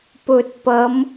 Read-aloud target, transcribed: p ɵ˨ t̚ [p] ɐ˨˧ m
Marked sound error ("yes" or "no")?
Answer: no